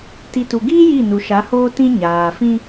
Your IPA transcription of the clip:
t i˨ t u˨ ɡ iː˦ j i˦˨ n u˨ ʃ a˨˦ h oː˦ t ĩ˦ ɲ aː˨ f ĩ˦

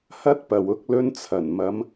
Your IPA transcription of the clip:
h ɐ˥ t̚ p ɐ˨ w ʊ˧ k̚ l ɵ˧ n t͡sʰ ɐ˨˩ n m ɐ˨˧ m

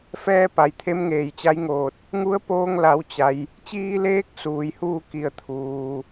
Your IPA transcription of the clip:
f ɛː˧ p a˩ j t̪ʰ e˧˥ m ŋ eː˩ j t͡ɕ a˧˥ j ŋ oː˧˩ t̚ | ŋ u˧˥ ə̯ p oː˧ ŋ l a˩˧ w t͡ɕ a˩ j | t͡ɕ iː˧ l eː˧˥ k̚ s uː˩ j h uː˥˨ k i˧˩ ə̯ t̪ʰ uː˩

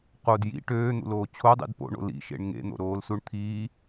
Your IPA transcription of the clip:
q o d j ḭ ʈ øː n̪ ṵ l oː t͡ɕʰ o dˤ ḭ d p o̰ ɳ o̰ l ḭ ʃ ḛ ɳ ŋ ḛ n̪ o̰ ɾ oː l s u ɳ t̪ʰ iː

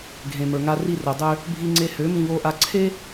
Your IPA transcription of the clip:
ɡʱ ẽ˨ m ə˞˨ ŋ a˧ r i˧ r o˨ dˤ ø˧ | bʱ i˧ ŋ͡ǀ e˧ h ø˨˦ m ĩ˧ β o˧ ʔ a˧ ǀʰ e˦

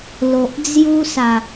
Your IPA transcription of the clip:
l o˨ ʔ d͡z j u˦ s a˨˩

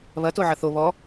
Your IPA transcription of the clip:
β ɐ t o ʕ ɐ θ o β ɔ

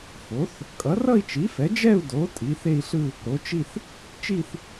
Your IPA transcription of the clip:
f o˩˥ θ | kʼ ʌ˩˥ r ʌ˥˧ i̯ t͡ʃ i˩˥ f ɛ˩˥ d͡ʒ ɛ˥˧ u̯ d o˩˥ tʼ i˩˥ θ e˥˧ i̯ ɬ ɯ˥˧ | ɾ o˩˥ t͡ʃ i˥˧ θ | t͡ʃ i˥˧ θ

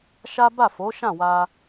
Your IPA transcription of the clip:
ʃ a˦ b a˦˨ f o˨˦ ʃ ã˦˨ w a˧

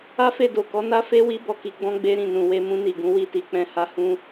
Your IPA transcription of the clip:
a˦ f e˦˨ d o˨ k ɔ˨˦ n a˦ f e˦ w i˦ b ɔ˦˨ k i˨˦ ɡ͡b ɔ̃˦ ɡ͡b e˦ ɾ ĩ˦˨ n ũ˨ w e˧ m ũ˦ n i˦˨ ɡ ũ˨˦ w i˦˨ t i˨˦ k͡p ɛ̃˦ h a˦ h ũ˦

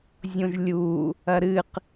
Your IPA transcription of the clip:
zʲ õ ʒ lʲ u | ɐ ɾ ɨ q

